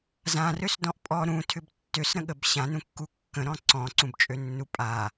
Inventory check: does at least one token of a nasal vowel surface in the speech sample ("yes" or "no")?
yes